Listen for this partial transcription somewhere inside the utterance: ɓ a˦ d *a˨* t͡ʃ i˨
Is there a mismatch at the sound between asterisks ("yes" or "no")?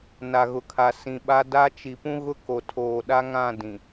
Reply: yes